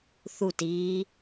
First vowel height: high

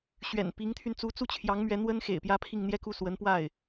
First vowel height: mid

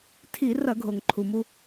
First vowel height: high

